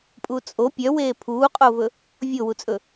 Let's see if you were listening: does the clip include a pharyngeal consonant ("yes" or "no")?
no